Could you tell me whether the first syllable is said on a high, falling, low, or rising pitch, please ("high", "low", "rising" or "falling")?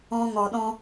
high